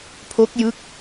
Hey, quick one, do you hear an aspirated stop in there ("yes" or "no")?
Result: yes